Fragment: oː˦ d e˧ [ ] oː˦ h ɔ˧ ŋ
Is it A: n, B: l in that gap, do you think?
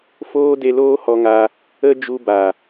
B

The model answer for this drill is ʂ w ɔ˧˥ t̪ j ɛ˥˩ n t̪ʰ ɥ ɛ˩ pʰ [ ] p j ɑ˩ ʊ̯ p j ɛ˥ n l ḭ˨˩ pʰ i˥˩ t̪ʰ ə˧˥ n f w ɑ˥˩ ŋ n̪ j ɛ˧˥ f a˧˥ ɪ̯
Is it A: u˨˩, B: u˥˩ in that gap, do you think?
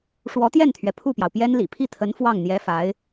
B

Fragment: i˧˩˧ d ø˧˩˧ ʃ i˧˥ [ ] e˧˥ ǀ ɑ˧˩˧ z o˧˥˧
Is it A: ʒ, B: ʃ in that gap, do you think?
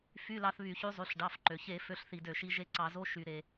A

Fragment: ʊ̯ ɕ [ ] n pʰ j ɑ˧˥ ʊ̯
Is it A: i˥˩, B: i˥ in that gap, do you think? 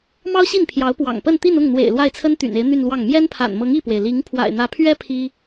A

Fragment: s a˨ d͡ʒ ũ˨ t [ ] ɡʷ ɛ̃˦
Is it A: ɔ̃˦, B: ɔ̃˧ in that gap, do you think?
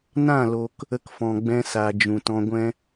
B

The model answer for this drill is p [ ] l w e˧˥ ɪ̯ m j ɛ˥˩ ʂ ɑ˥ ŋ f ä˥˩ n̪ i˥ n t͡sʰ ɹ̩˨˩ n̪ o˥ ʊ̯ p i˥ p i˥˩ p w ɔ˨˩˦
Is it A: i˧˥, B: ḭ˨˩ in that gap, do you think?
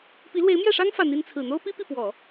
A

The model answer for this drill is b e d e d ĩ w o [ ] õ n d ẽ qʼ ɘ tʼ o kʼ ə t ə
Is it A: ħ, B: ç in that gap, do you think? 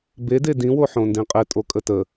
A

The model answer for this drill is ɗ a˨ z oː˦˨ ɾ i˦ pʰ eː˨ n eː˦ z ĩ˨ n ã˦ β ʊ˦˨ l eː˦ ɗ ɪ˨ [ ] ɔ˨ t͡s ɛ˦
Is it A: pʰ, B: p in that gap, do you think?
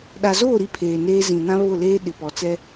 B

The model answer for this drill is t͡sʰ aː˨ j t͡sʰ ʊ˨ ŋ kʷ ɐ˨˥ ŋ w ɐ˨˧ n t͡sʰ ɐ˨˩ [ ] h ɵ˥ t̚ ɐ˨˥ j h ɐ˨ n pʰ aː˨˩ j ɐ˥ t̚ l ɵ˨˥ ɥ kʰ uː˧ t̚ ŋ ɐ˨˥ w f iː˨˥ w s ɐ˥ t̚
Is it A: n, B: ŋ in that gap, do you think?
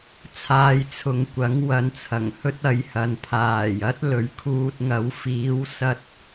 B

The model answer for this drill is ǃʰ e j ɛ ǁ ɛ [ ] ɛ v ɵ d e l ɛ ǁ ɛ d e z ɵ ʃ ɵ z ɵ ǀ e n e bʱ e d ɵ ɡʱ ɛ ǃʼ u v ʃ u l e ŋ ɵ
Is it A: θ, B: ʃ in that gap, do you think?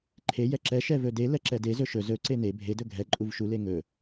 B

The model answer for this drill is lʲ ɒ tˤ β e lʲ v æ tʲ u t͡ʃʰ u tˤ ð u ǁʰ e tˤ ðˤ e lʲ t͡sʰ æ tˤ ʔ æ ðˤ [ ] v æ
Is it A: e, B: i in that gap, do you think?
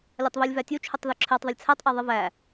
A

